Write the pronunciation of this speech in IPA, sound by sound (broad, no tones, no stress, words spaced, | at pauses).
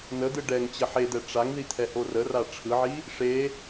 nəd̪ɯ ɖɛŋ t͡ɕəħed̪ɛ ʈ͡ʂaŋði t̪ʰɛhorəra ʈ͡ʂʰɯʕi | ʂe